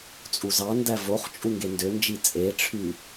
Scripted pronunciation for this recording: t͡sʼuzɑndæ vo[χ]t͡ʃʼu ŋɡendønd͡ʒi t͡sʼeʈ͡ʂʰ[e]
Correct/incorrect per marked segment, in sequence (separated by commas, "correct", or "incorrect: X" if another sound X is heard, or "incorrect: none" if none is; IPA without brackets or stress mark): correct, incorrect: y